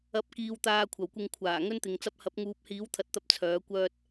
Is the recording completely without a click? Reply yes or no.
yes